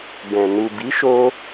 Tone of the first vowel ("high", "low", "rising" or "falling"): low